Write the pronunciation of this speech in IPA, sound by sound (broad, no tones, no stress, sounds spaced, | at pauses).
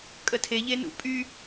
kʼ ə tʰ e ʎ e n ṵ pʼ y